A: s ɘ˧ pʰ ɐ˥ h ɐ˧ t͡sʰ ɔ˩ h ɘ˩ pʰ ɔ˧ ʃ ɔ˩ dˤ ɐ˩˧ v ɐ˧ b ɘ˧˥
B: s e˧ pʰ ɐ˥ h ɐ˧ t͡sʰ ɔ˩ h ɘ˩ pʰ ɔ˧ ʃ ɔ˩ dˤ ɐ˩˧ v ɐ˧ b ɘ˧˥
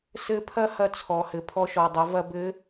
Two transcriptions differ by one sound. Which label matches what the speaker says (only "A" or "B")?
A